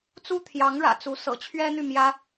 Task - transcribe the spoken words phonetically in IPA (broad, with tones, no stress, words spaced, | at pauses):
t͡su˥t̪ʰjɑ˧˥ŋɻä̰˨˩t͡su˧˥ sɤ̰˨˩t͡ɕʰɥɛ˥n̪y˥˩mjä˥